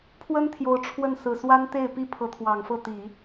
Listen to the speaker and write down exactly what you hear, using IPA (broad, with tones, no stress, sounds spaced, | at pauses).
pʰ w ə˥ n t̪ʰ j o˧˥ ʊ̯ ʈ͡ʂʰ w ə˥˩ n s ɹ̩˨˩ s w a˥ n t̪ e˥˩ ɪ̯ p i˥ pʰ ɤ˧˥ t̪ʰ w ɑ˨˩ ŋ f ɤ˥˩ t̪ i˨˩˦